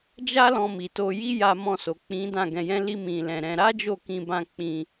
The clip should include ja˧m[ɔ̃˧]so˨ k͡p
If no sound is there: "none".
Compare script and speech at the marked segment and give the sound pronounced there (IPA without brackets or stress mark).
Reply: ɔ̃˧